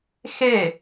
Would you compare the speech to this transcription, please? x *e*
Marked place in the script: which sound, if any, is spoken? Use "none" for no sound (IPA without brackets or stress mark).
e